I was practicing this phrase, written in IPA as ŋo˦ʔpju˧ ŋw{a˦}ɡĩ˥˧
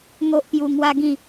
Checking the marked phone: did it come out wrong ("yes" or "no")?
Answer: no